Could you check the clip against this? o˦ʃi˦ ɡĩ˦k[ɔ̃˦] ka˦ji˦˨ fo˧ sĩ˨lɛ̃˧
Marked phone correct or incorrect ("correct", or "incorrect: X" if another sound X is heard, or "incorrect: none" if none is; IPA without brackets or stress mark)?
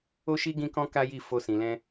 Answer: correct